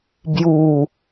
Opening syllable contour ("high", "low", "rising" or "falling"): low